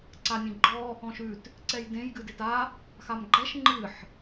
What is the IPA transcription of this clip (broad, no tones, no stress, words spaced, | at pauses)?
ǀanʲẽɡ͡ǃɔ | ɔ̃ʃʉt | ǀɛjdẽj ɡɨdeta | xamɡ͡ǃɛʃ ŋ͡ǃɨħ